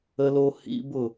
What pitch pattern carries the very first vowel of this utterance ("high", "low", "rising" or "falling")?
high